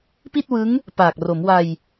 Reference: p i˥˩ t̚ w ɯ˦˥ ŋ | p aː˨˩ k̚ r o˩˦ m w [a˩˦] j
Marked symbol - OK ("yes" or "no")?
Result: no